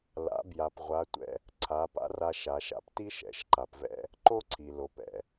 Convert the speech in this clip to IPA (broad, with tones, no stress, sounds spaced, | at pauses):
l a̰˩˧ b j a˩ p ʁʷ a˩˧ tʷ ɛ̰˧ | ǀʰ a˩˧ p a̰˧˥ r a˧ ʃ a˩˧ ʃ a̰˧ p t i˥ ʃ ɛ̰˩˧ ʃ ǃ a˩ p v ɛ̰˥ | ǃ o˥ ǀʰ i˩ l o˩˧ p ɛ̰˩